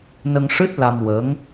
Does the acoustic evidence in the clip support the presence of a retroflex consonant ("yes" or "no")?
yes